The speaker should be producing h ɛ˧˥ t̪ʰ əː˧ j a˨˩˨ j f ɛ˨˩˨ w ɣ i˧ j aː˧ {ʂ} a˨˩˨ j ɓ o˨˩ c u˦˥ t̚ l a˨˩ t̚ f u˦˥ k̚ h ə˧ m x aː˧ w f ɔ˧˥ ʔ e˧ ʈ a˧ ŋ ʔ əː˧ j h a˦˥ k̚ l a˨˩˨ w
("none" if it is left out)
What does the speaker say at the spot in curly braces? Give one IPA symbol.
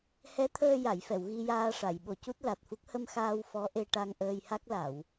ʂ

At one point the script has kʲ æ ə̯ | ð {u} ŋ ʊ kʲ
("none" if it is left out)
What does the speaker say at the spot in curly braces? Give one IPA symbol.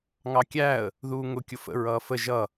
uː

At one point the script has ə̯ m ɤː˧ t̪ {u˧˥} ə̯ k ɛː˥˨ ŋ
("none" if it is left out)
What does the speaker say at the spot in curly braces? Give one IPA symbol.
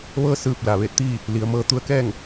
u˧˥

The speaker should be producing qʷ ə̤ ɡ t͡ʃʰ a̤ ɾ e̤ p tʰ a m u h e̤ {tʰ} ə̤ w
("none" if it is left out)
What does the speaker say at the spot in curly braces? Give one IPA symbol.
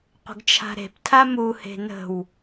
n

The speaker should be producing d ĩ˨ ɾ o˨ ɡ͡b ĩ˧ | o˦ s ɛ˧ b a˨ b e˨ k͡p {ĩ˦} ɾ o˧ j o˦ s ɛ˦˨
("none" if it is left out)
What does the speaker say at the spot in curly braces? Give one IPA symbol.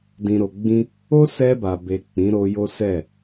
ĩ˨˦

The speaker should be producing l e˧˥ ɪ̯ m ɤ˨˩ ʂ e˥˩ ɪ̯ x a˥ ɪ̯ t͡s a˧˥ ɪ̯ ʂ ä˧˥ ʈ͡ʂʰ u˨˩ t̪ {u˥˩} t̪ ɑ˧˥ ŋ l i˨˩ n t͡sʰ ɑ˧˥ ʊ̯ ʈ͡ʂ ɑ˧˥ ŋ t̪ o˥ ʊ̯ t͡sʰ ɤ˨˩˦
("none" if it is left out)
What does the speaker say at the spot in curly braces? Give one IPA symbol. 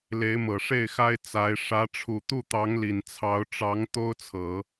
u˥˩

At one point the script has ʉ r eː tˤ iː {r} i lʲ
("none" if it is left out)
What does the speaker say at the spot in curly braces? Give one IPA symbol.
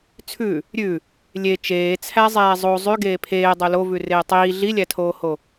ɮ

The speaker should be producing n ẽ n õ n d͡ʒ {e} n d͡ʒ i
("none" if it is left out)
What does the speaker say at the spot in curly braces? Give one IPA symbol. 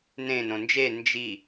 e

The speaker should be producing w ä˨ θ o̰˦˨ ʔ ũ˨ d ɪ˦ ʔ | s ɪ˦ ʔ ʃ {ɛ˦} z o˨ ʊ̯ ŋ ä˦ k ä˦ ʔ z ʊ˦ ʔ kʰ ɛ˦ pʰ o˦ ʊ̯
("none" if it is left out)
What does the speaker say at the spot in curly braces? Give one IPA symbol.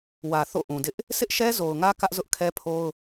ɛ˦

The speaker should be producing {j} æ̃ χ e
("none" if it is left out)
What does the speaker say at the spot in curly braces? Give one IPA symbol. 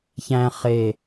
ç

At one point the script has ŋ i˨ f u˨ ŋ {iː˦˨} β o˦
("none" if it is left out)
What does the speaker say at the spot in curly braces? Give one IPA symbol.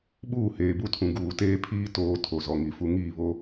iː˦˨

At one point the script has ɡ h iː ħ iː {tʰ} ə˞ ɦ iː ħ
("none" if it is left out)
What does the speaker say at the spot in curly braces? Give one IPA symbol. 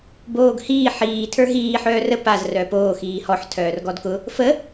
tʰ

